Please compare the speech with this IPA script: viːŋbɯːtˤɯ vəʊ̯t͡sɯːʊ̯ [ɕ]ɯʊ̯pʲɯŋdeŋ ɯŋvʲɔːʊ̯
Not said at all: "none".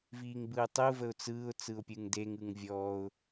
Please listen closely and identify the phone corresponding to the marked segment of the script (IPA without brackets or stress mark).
t͡s